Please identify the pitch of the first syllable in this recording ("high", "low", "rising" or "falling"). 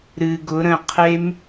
low